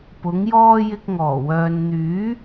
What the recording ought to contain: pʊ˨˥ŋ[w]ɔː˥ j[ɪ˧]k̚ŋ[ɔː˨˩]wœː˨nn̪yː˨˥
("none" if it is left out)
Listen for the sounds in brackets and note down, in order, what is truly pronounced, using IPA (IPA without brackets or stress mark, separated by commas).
j, ɪ˧, ɔː˨˩